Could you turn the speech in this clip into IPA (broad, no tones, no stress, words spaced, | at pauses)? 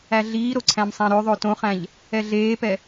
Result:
æɮiːɾo ǀʰæ̃msˤæ̃ɾøðˤø tõχæ̃ʎ | ɛɮeːpɛ